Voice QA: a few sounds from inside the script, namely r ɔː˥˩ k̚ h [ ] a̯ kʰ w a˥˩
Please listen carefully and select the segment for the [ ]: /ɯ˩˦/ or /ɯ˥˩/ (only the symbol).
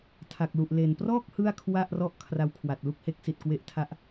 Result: ɯ˥˩